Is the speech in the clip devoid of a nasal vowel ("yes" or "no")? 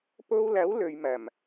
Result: yes